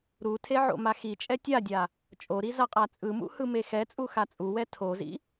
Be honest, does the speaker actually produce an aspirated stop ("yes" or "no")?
yes